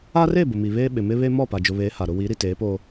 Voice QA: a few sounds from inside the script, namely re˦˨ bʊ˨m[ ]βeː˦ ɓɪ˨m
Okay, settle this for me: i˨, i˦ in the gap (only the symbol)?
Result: i˨